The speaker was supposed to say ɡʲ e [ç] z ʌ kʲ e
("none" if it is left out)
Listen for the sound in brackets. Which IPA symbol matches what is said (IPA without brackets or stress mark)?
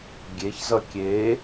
ç